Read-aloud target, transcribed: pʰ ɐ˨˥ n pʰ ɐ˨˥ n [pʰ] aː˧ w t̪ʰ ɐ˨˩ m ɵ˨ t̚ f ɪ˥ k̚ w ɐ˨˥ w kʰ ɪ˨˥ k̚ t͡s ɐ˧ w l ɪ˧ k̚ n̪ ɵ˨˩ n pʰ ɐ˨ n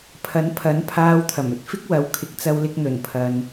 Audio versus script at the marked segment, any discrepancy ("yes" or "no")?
no